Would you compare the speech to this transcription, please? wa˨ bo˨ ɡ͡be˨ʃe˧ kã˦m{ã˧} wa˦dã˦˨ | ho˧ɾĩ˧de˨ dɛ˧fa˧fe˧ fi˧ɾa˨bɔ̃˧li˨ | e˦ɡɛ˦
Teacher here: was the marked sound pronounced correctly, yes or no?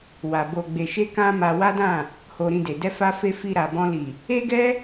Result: no